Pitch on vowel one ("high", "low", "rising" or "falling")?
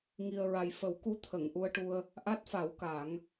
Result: low